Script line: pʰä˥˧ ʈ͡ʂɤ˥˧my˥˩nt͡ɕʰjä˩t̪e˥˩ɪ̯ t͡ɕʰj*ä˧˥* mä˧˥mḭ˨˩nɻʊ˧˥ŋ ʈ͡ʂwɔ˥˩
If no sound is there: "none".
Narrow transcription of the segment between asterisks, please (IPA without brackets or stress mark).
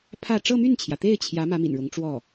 ä˧˥